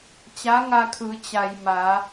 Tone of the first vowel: rising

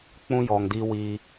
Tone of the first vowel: high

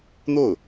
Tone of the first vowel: falling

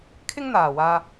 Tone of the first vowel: high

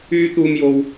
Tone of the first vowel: high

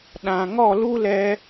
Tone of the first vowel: low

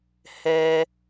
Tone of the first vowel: high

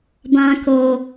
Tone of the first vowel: low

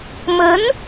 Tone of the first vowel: rising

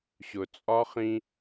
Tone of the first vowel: low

